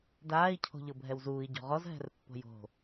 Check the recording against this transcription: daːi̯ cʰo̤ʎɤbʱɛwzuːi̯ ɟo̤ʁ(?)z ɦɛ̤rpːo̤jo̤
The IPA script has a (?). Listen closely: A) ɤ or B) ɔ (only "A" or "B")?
B